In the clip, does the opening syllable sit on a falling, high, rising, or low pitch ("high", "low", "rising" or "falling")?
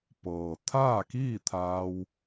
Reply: low